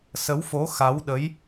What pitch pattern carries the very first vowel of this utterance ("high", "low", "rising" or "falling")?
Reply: rising